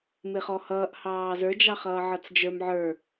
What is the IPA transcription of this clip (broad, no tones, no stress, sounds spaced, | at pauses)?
m ɪ χ ɔ h ʌː ʔ h ɑː z ə˞ d͡ʒ ɑ χ ʌː ʕ ʌ t͡s d͡ʒ ə˞ m ʕ ə˞